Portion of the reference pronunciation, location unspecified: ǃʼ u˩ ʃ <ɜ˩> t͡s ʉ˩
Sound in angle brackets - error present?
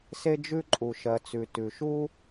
no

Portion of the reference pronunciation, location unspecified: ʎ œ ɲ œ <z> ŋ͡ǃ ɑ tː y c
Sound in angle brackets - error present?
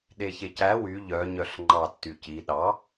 yes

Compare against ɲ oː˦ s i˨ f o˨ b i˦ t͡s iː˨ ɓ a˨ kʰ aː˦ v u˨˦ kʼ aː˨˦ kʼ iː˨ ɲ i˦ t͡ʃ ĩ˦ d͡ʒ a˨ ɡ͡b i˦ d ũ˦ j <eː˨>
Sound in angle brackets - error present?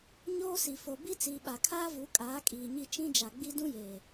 no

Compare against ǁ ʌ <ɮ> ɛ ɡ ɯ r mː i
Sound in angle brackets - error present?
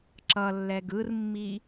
yes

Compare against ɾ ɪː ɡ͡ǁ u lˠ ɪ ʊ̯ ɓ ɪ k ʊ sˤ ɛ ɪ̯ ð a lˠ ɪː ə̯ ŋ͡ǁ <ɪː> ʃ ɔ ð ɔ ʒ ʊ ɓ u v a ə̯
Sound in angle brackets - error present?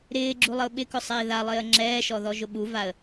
yes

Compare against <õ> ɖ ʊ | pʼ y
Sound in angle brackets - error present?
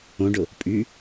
no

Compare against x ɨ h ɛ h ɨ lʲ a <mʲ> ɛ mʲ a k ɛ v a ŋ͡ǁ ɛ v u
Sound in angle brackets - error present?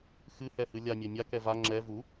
no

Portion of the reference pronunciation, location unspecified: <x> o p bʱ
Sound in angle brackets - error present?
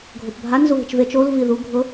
yes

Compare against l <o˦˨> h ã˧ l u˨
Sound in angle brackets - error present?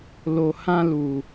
yes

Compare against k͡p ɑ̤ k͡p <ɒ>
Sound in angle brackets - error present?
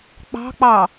yes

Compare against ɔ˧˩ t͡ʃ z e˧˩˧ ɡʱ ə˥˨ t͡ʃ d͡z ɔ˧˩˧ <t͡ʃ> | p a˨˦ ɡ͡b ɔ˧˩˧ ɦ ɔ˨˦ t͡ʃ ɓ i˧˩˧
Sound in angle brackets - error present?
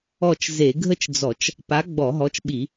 no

